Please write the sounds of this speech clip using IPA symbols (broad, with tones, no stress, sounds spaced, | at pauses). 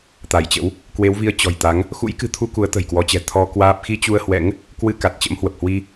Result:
t̪ a˧˩ j t͡ɕ ə̰˧˥ w | k w e˨˦ w v i˧ ə̯ t͡ɕ ɔ̤˨˩ j t̪ a˨˦ ŋ | x ṵ˧˥ j k ɨ̤˨˩ t̪ʰ u˧ k u˨˦ ə̯ t̪ ə̤˨˩ j k w ɔ˨˦ t͡ɕ ɛ̤˨˩ t̪ʰ ɔ˧ k w aː˦˥ p̚ x i˧ t͡ɕ u˧ ə̯ h w ɛ̰˧˥ ŋ | k w ɨ˧ k a˨˩ t̚ t͡ɕ ə̰˧˥ m h w ə˨˩ p̚ h w i˧